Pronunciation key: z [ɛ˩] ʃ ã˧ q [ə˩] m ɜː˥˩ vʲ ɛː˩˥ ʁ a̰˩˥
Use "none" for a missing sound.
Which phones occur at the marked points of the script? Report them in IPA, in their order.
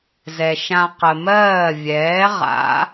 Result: ɛ˩, ə˩

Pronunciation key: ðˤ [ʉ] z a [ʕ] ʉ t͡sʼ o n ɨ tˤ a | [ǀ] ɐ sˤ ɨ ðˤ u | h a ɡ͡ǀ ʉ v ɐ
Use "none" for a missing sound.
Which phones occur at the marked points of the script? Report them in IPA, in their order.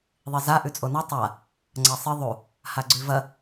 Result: ɨ, ʔ, ŋ͡ǀ

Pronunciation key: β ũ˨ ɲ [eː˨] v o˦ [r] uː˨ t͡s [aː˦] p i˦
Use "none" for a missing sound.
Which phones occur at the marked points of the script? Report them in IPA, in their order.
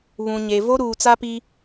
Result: e˨, ɾ, a˦

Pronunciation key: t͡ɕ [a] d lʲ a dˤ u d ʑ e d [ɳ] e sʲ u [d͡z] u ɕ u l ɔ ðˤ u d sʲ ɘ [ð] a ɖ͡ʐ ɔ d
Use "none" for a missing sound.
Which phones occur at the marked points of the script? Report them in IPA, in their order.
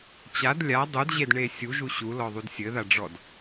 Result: a, ɳ, ʒ, ð

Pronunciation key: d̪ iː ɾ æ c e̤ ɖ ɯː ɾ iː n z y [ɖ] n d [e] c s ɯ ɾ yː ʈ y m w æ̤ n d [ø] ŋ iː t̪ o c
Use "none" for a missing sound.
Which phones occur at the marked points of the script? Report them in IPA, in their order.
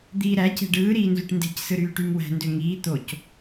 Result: ʈ, e̤, ø

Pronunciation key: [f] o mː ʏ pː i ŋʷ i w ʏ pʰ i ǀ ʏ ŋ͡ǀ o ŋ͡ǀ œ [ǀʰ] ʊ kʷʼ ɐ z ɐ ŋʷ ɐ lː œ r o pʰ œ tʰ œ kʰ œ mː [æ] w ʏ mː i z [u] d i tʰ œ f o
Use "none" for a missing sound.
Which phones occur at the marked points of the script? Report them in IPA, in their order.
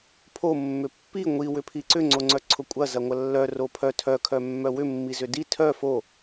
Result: pʰ, ǀʰ, œ, ʏ

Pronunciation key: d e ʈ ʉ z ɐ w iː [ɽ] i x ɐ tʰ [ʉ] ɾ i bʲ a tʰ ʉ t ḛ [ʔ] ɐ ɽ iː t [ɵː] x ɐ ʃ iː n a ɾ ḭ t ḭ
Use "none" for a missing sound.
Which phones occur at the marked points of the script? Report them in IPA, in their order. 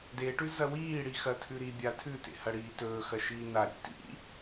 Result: ɽ, ʉ, h, ɵː

